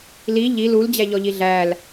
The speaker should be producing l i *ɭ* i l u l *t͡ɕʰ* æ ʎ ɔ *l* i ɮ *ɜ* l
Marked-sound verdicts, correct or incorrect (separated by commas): incorrect, incorrect, incorrect, incorrect